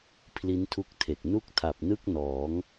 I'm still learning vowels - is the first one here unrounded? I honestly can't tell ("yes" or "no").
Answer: yes